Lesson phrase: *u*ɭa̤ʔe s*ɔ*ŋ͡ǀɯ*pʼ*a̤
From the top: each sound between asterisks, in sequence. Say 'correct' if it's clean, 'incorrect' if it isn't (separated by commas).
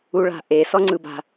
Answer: correct, correct, incorrect